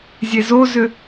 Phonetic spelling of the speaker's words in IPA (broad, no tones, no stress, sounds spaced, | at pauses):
zʲ e z o z ʏ